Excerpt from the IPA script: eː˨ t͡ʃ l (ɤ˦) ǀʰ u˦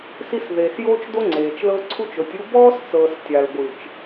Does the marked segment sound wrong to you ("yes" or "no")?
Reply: no